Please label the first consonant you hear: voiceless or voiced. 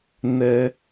voiced